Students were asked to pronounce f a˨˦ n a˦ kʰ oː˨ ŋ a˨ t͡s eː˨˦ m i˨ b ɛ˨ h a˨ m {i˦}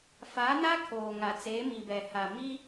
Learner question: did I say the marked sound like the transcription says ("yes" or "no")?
yes